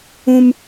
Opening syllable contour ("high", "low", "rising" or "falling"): high